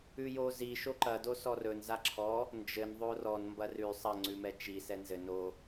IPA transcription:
ʉjozi ʃoǃɐdo sɔrɵnza ǁʰɔ | nd͡ʒɘn ðˤorɔn mbɐrʉ sˤɐ ŋ͡ǀʉmɛt͡ʃi sɛnzɘ no

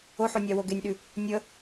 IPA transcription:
oħonʲɑwo ɡenʲɗʉ | nʲə

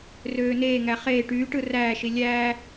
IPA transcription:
røːneːŋæ χeː ʈyːʈɯ ræːʃi lʲæː

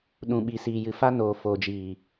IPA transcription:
ɗũ˨ɓi˨siː˨jɨ˨ fa˧noː˨ foː˨d͡ʒiː˨

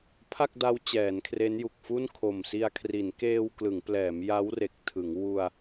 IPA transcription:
pʰa˥˩k̚da˦˥w t͡ɕɛː˩˦nkʰre˦˥nju˨˩k̚fu˥˩n kʰo˨˩msi˧a̯ kʰri˩˦nkeː˧wklɯ˩˦ŋplɛː˩˦m ja˦˥wre˨˩k̚tʰɯ˩˦ŋ wu˧a̯

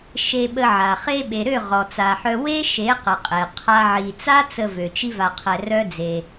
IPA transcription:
ʃe˧ɓə˧ʕa˨ χe˧ɓe˨ɾø˦˨ ʁɔ˨t͡sa˨ħœ˧ we˦ʃe˨˦qə˨ qʼe˨qʰa˦ʕi˧ t͡sa˦t͡sə˧vø˨ t͡ʃi˦va˧qʰɛ˧ rœ˦d͡ze˧

